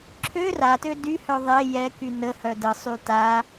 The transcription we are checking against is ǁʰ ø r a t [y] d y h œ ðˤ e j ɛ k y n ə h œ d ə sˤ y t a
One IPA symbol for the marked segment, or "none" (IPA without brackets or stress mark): ø